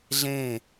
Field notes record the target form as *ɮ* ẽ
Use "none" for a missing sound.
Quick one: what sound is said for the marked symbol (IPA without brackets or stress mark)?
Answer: ɮ